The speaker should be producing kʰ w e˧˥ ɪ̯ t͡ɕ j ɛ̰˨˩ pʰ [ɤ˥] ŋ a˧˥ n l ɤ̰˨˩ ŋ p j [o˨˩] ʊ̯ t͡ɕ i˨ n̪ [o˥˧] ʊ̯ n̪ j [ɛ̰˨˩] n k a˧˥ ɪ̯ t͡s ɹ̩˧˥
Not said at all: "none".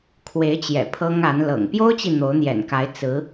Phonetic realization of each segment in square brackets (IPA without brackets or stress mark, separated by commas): ɤ˥, o˥, o˧˥, ɛ̰˨˩